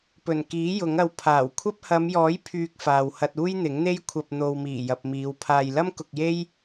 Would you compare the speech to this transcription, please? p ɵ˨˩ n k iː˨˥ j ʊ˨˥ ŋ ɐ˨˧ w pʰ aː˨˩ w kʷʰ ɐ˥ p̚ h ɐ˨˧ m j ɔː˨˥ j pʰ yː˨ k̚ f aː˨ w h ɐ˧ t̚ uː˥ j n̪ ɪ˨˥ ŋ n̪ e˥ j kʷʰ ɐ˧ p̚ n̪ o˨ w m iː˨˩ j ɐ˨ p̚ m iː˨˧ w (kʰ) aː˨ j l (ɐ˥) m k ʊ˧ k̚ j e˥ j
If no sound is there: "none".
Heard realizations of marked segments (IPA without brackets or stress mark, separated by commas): pʰ, ɐ˥